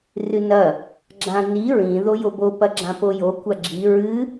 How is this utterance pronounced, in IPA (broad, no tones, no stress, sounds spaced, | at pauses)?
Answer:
r ɨ n ɐ | ɡ͡ǁ ã n i ɹ ĩ ð o j o b o p ɐ ɡ͡ǁ ã p o j o kʷ a ɡ͡ǁ i ɹ ɨ